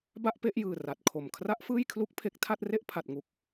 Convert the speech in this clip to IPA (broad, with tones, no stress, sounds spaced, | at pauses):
b a˥˩ ʔ p e˥˩ ʔ j ɯː˨˩ r a˨˩ t̚ kʰ o˨˩ m kʰ r a˦˥ ʔ f ɯː˥˩ j kʰ l u˦˥ k̚ pʰ e˦˥ k̚ tʰ a˥˩ t̚ r e˥˩ ʔ pʰ a˨˩ t̚ ŋ u˨˩ k̚